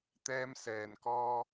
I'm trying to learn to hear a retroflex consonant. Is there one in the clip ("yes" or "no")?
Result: no